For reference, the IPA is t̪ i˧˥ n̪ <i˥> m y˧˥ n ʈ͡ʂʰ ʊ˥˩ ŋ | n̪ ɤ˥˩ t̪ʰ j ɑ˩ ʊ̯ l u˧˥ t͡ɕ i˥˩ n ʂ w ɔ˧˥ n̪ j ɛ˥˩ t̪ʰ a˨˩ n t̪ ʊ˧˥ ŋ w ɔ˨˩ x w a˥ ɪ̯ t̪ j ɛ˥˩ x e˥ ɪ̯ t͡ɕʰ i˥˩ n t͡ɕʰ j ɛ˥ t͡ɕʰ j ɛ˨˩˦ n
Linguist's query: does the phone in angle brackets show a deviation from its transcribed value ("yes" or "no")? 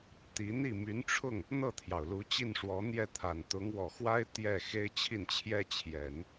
yes